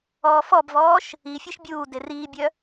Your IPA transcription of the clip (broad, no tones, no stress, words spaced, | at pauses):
ɔːfɔbvɔːʃ | ifʲeʃ bʲuː deriːbʲœ